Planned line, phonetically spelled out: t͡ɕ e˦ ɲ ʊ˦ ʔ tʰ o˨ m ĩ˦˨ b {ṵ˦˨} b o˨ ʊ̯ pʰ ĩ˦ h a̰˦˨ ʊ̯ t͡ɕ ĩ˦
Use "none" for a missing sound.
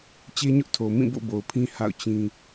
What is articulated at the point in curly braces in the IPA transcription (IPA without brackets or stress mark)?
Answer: o̰˦˨